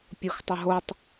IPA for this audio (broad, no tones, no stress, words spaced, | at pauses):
pʲʊxtˤʊɦotˤ